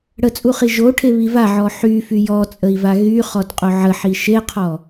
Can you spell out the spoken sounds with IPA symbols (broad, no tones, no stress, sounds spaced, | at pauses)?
ɽ ə t͡sʼ u χ i ʒ o ʈʰ e β i v a ʕ ɔ ħ y f y j ɔ t͡sʼ ə i̯ v a ɣ y χ ɔ d qʼ o ʕ ə ħ i ʃ e qʰ ɔ